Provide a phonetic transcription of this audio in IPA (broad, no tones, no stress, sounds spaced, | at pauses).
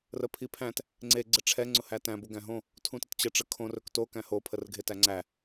r ə pʰ i pʰ æ̃ t | ŋ͡ǀ e ɡ͡ǀ ə ʈ͡ʂʰ ɛ ŋ͡ǀ ʊ h æ t æ̃ b o ɡ æ̃ ɦ õ | tʰ ũ t ə t t͡ɕ ə ʈ͡ʂ ə kʰ õ r ɵ k t o k æ̃ h o pʰ ə r ɡʱ e t æ ŋ͡ǀ æ